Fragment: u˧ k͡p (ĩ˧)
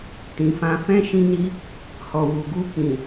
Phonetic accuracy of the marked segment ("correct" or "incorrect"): incorrect